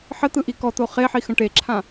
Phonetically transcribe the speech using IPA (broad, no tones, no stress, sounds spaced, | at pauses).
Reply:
ħ ə t̪ ɯ ʔ i k ɔ t̪ o χ e ħ i x ə̃ ʈ e ǁʰ ã